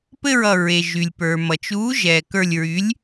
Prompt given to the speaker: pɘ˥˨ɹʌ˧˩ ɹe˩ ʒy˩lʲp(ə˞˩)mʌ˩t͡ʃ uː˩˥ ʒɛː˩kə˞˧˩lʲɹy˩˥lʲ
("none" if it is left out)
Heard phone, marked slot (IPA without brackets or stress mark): ə˞˩